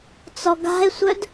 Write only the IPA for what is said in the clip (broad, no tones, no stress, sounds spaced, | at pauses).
t͡s ɔ ɡ a̤ e̯ sʷ œ d